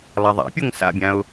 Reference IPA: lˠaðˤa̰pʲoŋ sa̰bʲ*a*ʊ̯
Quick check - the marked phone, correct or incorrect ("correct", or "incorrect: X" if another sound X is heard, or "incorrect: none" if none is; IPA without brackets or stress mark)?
incorrect: ã